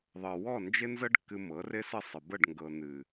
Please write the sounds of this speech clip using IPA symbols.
ðˤɤ˨wɔ˦˨nd͡ʒɪ˦nzə˦ɖ kːɨ˧ mɤ˨˦rɪ˦sə˦˨ sˤə˨ bə˦˨ɖŋɡɤ˨ n̪ɨ˨

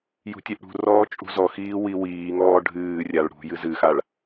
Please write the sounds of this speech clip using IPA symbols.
jṳtʲɨʔɽṳrɔː t͡ʃʼṳzɔxiː wiwiːŋɔː ɖʱɨːrʲaɭ ɽṳ jɨzɨxaɭ

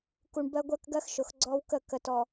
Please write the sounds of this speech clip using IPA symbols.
ku˨ɳ bɜ˦ɡʷɜ˦kɡɜ˦xʃʊ˨x ɡ͡ǀɔ˦wkə˦˨ kə˨tɔ˨

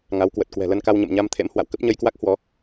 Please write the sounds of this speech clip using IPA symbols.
ŋa˨˦wkwə˨˩t̚ kwɛ̤˨˩lə˧nka˧wɲə̰˧˨m ɲa˧mt̪ʰḛ˧˥m hwa̰˧˨wkə˦˥p̚ ɲə˧jkwa˦˥k̚ hwɔ˨˦

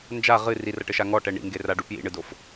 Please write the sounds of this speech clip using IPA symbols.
nd͡ʒa ʁɨ rirɐʈɘʃa ŋɔʈɛ ɳḭŋɡeraɖu pjḭɳɨdof

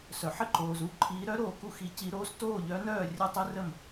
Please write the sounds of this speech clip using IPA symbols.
sœ˨ħ ə˥˨ǃoː˨zu˥˨ǃʰiː˧˥ ɾœ˥ ɾoː˥˨ku˥xi˧˥ ci˧˥ɾoː˥s toː˥˨ʎœ˧˥nœː˥˨ rʲœ˥˨tˤi˥rə˥˨m

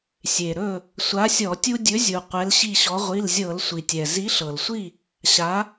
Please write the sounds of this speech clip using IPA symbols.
sʲe˩ɾɵ˥˨ | sʷa˨˥sʲɔ˧˩˧ tʲu˦dʲɵ˨˥zʲu˩ qʷɛ˨˥lɕi˥˨ɕɔ˨˥ ʁʷi˩˧˩lzʲɤ˧˩˧l sʷi˩tʲɛ˩ zi˨˥ɬɤ˩lsʷi˥˨ | ɕa˨˥

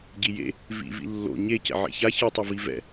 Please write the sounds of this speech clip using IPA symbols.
ɟijḛ | vḭ vḭlːo̰ ɲe cɛ̰ʕḛça çɯtˤʌvi vɛ̰

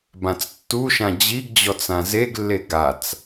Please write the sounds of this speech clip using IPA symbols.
bãt͡stːuʃã d͡ʑiɡd͡ʑɔt͡sã zeɡlːe ɡat͡s

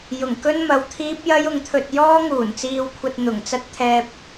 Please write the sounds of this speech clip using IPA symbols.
jʊ˨˩ŋkɵ˥nmɐ˨wt̪ʰiː˥p̚ jɐ˥jʊ˨˧ŋt̪ʰɵ˧t̚ jɔː˥ŋuː˨˩nt͡siː˧wkʷʰɐ˧t̚ n̪ʊ˨˩ŋt͡sɐ˥t̚t̪ʰɛː˧p̚

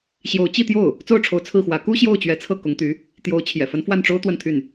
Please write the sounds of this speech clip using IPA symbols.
ɕjo˧˥ʊ̯ t͡ɕi˥˧t̪jo˥˩ʊ̯ | t͡so˥˩ʊ̯ʈ͡ʂʰo˧˥ʊ̯ t͡sʰɹ̩˥˩xwä˧˥ ku˥ɕjo˥˩ʊ̯ t͡ɕɥɛ˧˥t͡sʰɤ˥˩ kʊ˧˥ŋt̪y˧˥ | t̪jo˧˥ʊ̯ t͡ɕʰjɛ̰˨˩fə˧˥n fwa˥˩nʈ͡ʂo˥ʊ̯ t̪wə˥˧nt̪ʰy˥˩n

